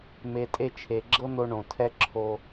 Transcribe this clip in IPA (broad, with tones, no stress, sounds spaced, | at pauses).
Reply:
m e˧ tʼ e˦ t͡ʃʰ e˨ ɡ͡ǁ ɤ˦ n̪ o˧ ɳ õ˨ tʰ ɛ˦ ǁʰ o˧